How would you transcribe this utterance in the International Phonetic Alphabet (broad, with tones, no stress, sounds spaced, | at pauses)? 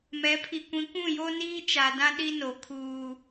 m ɛ˨˦ pʰ i˨ kʷ ĩ˨˦ kʷ ũ˦˨ j o˦ n iː˦ t͡ʃ a˨ d ã˦ ɗ i˦ n o˨ kʰ uː˦